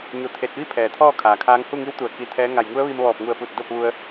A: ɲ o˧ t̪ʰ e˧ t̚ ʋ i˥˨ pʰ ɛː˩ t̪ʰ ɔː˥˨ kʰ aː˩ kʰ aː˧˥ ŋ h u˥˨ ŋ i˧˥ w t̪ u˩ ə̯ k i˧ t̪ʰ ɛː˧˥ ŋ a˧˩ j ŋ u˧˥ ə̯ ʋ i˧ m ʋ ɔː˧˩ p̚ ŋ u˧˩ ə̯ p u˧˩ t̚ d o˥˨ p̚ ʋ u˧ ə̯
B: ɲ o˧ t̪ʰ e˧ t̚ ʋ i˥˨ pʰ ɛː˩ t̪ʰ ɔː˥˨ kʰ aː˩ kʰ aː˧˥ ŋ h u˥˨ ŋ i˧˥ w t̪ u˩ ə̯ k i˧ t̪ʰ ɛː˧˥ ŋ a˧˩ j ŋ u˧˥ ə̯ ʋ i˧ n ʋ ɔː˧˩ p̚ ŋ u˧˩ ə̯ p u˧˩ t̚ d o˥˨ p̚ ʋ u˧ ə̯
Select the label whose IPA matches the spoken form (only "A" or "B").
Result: A